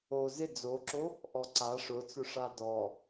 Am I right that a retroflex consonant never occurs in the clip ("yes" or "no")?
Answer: no